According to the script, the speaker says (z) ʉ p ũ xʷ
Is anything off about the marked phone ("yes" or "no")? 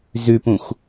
no